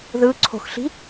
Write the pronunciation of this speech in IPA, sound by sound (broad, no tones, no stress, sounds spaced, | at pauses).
ð ɯ ǀʰ o̤ x ɬ i̤